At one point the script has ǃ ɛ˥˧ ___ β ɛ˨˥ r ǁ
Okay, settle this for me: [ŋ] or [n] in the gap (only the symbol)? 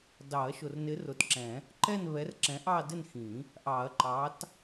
n